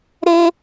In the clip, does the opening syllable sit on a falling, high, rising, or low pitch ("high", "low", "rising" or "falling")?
high